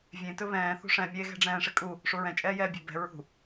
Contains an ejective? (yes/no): yes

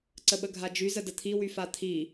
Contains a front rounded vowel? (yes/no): yes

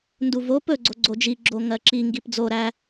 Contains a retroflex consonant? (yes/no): no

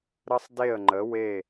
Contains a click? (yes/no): yes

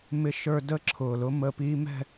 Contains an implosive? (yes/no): no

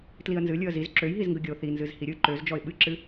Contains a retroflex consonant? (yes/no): no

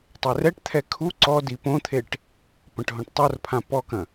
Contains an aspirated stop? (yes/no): yes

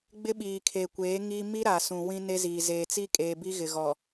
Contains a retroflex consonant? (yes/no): no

